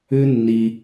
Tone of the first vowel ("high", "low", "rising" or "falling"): high